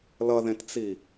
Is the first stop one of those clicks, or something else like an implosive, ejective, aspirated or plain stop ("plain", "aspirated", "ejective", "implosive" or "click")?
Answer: plain